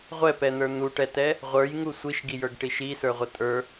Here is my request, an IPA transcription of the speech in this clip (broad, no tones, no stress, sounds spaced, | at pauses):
ʁʷ ɛ p ɛ n̪ ə˞ n̪ u ʈ ɛ t ɛ | ʁʷ ə˞ j ŋ u sʷ i ʃ ɡ i j ə˞ ɡ ʈ i ʃ i s ə˞ ʁʷ ə tʼ ə˞